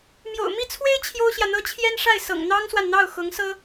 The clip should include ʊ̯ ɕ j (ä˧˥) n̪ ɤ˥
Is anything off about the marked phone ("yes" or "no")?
yes